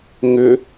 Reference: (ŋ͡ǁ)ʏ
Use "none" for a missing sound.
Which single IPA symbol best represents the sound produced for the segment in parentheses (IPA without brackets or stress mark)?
ŋ